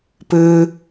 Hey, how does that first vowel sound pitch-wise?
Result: high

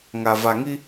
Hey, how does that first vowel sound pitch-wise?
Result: low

